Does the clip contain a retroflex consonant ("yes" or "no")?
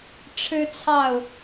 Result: yes